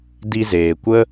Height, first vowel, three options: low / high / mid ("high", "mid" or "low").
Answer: high